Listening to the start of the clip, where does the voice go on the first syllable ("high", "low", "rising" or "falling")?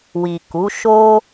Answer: low